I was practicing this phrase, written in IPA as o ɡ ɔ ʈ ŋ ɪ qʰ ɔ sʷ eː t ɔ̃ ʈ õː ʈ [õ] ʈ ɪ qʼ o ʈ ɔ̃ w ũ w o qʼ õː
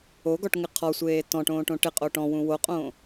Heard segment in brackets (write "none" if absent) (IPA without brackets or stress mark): õ